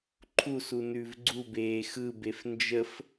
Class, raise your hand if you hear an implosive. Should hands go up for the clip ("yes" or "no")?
no